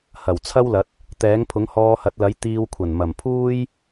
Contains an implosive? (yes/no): no